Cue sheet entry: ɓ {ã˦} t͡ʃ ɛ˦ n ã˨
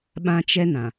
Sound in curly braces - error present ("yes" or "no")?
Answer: no